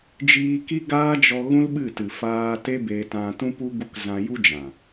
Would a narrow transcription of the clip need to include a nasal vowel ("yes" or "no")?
yes